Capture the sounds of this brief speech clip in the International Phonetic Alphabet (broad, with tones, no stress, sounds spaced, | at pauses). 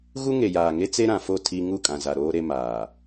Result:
ɣ u˦ ŋ e˨ j aː˨ ŋ e˦ t͡s e˦ ɾ ã˨ f o˦˨ tʰ i˦ ŋ u˦˨ kʼ ã˨ z a˨ ɾ oː˦ ɾ e˦ m aː˨